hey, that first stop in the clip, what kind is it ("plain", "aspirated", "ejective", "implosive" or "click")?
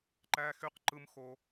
click